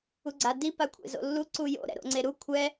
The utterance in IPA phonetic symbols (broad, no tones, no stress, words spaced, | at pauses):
uɡ͡ǀa di pakʷʰḛzo̰lːu ǀujo̰ ɾɛ̰ɾo̰ŋ͡ǀeɾu kʷʰɛ